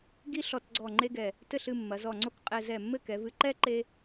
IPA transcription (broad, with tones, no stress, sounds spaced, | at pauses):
ɡ i˥ ɬ ɔ˧ t ɡ͡ǀ ɔ˧˩ ŋ͡ǃ e˥ ɡ ɛ˧˩ | t ɘ˥˧ ɬ ɨ˥˧ mː ɐ˩˧ z ɔ˧˩ ŋ͡ǀ o˥ k qʼ ɛ˧ z ɛ˧˩ mː ɘ˥˧ k ɛ˩˧ v ɨ˧ ǃ ɛ˥ ǃ e˥